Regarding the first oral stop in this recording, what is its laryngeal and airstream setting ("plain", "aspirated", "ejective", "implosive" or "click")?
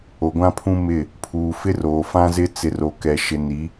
plain